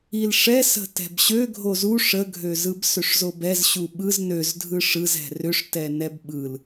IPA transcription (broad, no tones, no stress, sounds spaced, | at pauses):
i l ʂ ɛ s ə̤ t ɛ̤ b ɕ ø ɡʱ o z u ʂ ə ɡʱ ø z ɯ b s ø ʂ z o b ɛ z ɕ u ɓ ɯ z n ø z dʱ ɯ ʂ ɯ z ɛ̤ r ʏ ʂ t ɛ n ɛ b ɓ ɯ l